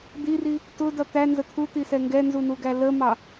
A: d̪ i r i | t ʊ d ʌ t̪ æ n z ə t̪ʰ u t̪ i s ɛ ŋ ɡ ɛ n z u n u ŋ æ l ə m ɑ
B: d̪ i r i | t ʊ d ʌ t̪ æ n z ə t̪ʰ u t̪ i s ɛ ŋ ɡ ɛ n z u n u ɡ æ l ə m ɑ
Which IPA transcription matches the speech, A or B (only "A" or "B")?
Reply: B